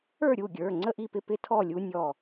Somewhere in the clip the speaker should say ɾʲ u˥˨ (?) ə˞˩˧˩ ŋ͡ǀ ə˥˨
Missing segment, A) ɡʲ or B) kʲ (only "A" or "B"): A